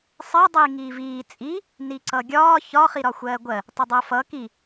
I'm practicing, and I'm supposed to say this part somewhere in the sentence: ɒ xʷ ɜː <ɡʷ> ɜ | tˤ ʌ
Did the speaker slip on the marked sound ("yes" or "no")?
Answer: no